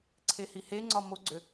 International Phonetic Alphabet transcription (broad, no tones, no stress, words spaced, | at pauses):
ǀʰehiheŋ͡ǀɒ moɡ͡ǀø